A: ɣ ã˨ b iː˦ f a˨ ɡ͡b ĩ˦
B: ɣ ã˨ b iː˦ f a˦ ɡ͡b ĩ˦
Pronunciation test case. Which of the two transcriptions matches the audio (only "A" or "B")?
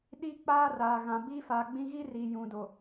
A